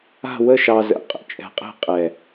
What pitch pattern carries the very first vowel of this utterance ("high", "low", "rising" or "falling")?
falling